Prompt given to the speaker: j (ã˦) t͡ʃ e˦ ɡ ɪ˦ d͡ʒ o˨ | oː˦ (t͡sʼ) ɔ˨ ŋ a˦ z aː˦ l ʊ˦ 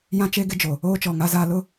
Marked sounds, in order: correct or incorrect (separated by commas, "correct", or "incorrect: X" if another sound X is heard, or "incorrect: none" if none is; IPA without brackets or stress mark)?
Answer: correct, incorrect: t͡ʃ